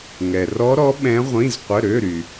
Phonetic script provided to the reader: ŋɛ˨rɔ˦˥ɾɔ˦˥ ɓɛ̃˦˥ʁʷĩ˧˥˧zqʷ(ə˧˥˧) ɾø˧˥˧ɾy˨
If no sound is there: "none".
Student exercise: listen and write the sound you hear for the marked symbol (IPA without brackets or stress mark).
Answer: ə˧˥˧